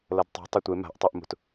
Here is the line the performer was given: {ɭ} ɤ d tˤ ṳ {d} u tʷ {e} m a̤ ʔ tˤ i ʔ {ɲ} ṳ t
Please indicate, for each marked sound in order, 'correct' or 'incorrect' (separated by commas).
incorrect, incorrect, correct, incorrect